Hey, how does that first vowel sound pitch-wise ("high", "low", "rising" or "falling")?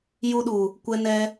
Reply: high